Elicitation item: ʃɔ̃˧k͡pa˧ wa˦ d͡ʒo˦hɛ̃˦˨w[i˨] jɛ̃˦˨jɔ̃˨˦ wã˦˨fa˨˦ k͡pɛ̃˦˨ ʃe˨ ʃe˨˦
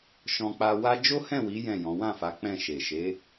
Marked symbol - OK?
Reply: no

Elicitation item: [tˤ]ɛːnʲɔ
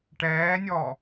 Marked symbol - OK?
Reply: no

